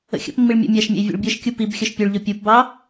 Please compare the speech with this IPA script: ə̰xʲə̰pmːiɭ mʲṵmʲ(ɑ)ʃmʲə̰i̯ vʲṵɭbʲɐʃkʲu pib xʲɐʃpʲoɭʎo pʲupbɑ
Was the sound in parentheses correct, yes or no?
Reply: no